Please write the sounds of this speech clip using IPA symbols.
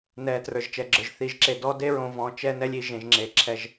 n ɛ˨ t r ə˞˨ ʒ t͡ʃ ɛ˨ ɡ͡ǁ ə˞˨ ʒ θ i˨ ʒ ǁ e˨ d ɔ˦ d e˦ ɹ õ˨ v ɔ̃˨ t͡ʃ ɛ˦ n ɛ˦ lʲ i˨ ʒ ẽ˨ ʒ ŋ͡ǁ e˨ ǁʰ ɛ˦ ʒ

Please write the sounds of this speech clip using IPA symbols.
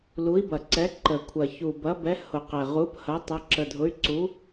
l u˨˥ i̯ b ɐ˨˩ ǀ ɛ˨˥ ǃ ə˨˩ kʷʰ ɐ˨˩ ç u˨˩ b ɐ˨˥ b ɛ˨˥ h ʊ˨˩ q ɛ˨˩ ʁ u˨˥ p h ɐ˨˥ tˤ ɐ˨˥ ǁ ə˨˩ dʱ ʊ˨˥ y̯ ǀ u˨˥

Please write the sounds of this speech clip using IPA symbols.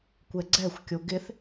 kʷ ɛ ɡ͡ǀ ɛ xʷ kʲ o ɡ ɪ θ

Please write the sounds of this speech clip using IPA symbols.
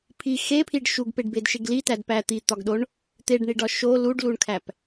pʰ i x e pʰ i ɖ ʃ u ɡ p e ɖ b e d ʃ e ɡ l i t æ d p æ t̪ i t̪ ɒ ɡ ɗ o ɳ | t̪ e ɖ ɳ i ɖ ɒ ʃ o l u ɖ l u ɳ kʰ æ p

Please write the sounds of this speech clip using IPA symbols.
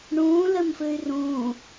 ɳ ũː l ɘ m f ɨ y̯ r ũː

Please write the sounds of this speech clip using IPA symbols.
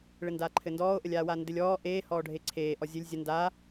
ɭ ɘ n d aː ǃʰ ɘ n d ɔː o̯ ʔ ə lʲ aː w aː n d ɘ lʲ ɔː ʔ eː h ɔː ɖʱ e ǀʰ eː ʔ ɔ zʲ ɘ lʲ zʲ ə n d aː

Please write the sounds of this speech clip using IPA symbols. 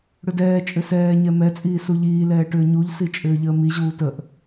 ɽ ʏ d ɛː t͡ʃʼ ʏ s ɛː ɲ ɛ m ɛ t͡sʼ iː s u ʎ iː l ɛː ʈ ʏː ɲ u ʎ s i t͡ʃʼ ʏː ʎ əː m i ʑ uː t ə ʔ

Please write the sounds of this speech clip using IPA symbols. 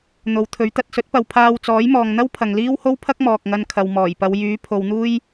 n̪ o˨˧ w t̪ʰ ɵ˨˥ ɥ t̪ ɐ˧ t̚ s ɵ˨˥ t̚ p ɐ˨˧ w pʰ aː˧ w t͡s ɔː˨˥ j m ɔː˨ ŋ n̪ ɐ˥ w pʰ ɐ˨ ŋ l iː˥ w h o˥ w pʰ ɐ˥ k̚ m ɔː˨ k̚ ŋ ɐ˧ n kʰ ɐ˨ w m ɔː˨˩ j p ɐ˨˧ w j yː˨˥ pʰ o˨ w n̪ uː˥ j

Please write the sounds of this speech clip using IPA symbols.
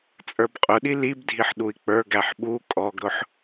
t͡sʼ ə˞ b qʼ ʊ ɗ i l i b dʱ i ħ ɗ u i̯ k͡p ə˞ ɡ æ ħ ɓ u kʼ ɔ ɡ ɾ ʊ ħ

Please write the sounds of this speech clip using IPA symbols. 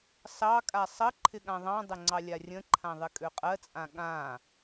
s ɑ kʼ a sˤ ə ǃʰ ɪ ɠ ã ðˤ ɑ̃ dˤ ɪ ŋ͡ǀ ɑ lʲ a rʲ ə̃ ǃʰ ã ðˤ ɪ kʼ ø qʼ ɜ t͡sʼ ã ɠ ã

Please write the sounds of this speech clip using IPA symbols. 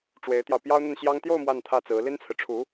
ʈ͡ʂ w e˧˥ ɪ̯ t̪ j ɑ˧ ʊ̯ p j ɑ˥ ʊ̯ n̪ ə˥˩ n ɕ j ɑ˥ ŋ t̪ j o˥˧ ʊ̯ m w a˥˧ n t̪ʰ ä˥˩ t͡s ɹ̩˧˥ l i˥ n t͡sʰ ɹ̩˨ ʈ͡ʂʰ u˧˥

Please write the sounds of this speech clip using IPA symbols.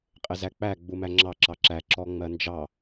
qʼ ɪ z æ k͡p æ ɡ͡b u m æ ŋ͡ǁ ɑ ǁ ɑ ǁ æ ǁ ɔ ŋ͡m ɜ n d͡ʒ ɑ

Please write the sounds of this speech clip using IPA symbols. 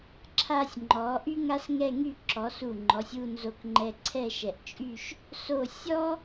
ǁʰ a˧ sʲ ŋ͡ǃ ɔ˩˧ ʔ y˥ ŋ a˥ s ŋ ɛ˥˧ ŋ y˥˧ ǁ ɔ˩˧ s u˧˩ ŋ͡ǃ ɔ˩˧ sʲ u˥˧ n z o˧ k ŋ͡ǃ ɛ˧ ǀʰ ɛ˥˧ ʃ ɛ˧˩ ʔ t͡ʃʼ y˥˧ ʃ | s o˧˩ sʲ ɔ˥

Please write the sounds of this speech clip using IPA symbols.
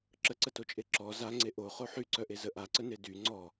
ǁ ə ǀ ə t o t͡ʃʼ e ǁ ɔ z a ŋ͡ǀ e ʔ o χ o ħ y ǀ œ ʔ e z ə ʔ a ǀ ə n e d y ŋ͡ǀ ɔ

